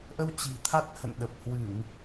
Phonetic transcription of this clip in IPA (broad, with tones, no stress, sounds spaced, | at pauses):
ʔ ə˧ w t͡ɕ i̤˨˩ t̪ʰ a˦˥ t̚ h ə̰˧˨ n ɗ ə˨˩ p̚ h w ɨ˧˩˨ ŋ